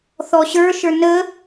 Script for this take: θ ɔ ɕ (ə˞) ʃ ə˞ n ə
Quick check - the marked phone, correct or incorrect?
correct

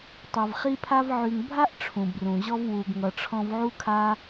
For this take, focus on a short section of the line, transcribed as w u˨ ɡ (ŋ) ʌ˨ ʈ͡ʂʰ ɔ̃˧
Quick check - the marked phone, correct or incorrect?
correct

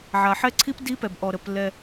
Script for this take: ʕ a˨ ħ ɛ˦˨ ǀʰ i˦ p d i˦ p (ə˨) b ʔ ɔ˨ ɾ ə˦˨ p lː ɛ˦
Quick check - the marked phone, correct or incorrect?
incorrect: ɛ˨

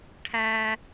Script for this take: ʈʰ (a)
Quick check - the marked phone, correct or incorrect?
incorrect: æ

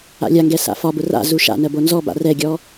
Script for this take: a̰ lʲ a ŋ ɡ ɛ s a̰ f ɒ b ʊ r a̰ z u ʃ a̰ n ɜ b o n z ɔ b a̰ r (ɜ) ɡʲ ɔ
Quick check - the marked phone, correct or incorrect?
incorrect: ɛ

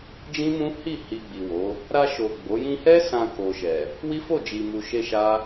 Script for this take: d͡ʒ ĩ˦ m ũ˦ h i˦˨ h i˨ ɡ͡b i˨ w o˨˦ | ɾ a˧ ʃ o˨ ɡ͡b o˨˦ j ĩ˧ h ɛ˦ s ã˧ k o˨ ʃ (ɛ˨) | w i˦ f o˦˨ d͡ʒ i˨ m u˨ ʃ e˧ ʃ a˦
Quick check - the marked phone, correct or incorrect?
correct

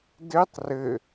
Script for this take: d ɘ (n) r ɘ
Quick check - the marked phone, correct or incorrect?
incorrect: tˤ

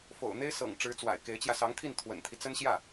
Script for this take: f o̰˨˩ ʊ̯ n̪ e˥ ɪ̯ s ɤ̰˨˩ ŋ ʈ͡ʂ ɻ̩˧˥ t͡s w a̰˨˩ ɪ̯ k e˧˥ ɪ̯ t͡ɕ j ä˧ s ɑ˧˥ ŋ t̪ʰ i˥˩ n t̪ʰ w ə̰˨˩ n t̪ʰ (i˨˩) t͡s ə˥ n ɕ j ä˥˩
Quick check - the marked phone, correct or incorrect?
incorrect: i˦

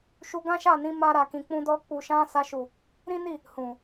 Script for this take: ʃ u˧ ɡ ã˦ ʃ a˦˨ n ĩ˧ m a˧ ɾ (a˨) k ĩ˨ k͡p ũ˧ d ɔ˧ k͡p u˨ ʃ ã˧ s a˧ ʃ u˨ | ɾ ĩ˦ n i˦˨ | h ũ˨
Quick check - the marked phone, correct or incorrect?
correct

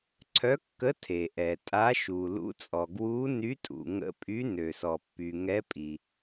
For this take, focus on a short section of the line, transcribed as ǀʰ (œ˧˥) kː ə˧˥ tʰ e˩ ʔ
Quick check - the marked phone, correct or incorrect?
correct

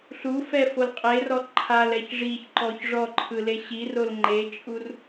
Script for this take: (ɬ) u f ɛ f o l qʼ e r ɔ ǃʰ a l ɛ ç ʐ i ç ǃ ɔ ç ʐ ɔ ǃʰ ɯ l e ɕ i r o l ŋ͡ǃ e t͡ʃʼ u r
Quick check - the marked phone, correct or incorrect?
correct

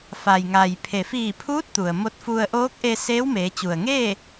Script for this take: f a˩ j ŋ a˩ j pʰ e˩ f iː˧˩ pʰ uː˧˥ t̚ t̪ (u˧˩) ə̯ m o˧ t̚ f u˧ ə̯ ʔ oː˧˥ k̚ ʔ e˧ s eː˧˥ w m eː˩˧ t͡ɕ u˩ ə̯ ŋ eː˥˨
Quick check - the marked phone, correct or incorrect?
incorrect: u˩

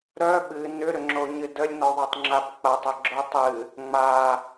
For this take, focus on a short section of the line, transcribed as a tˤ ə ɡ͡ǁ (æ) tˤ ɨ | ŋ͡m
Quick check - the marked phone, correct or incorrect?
incorrect: œ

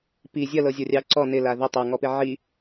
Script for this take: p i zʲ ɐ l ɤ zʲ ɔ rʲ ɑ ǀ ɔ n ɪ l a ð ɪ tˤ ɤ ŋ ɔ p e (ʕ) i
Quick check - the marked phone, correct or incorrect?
correct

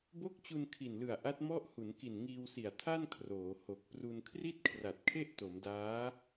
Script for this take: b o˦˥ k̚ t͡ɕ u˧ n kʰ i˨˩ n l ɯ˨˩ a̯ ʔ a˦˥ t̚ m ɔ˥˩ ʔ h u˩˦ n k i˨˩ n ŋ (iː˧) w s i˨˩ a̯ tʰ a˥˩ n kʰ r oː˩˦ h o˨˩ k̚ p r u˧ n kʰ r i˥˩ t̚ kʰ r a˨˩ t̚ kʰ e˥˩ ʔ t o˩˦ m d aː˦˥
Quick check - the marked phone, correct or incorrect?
correct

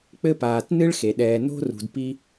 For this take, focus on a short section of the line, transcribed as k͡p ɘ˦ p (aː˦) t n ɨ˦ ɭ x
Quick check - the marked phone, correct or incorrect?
incorrect: aː˨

